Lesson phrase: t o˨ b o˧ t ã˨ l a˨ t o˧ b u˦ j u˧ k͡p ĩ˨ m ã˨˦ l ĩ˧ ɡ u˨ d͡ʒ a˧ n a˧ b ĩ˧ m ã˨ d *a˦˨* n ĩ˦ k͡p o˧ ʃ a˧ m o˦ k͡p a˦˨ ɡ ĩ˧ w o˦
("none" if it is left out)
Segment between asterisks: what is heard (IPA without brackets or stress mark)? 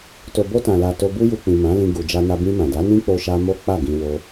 a˨˦